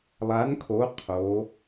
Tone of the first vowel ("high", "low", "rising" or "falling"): rising